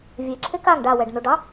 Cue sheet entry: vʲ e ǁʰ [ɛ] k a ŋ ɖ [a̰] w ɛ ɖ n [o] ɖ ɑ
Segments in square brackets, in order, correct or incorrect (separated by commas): incorrect, incorrect, correct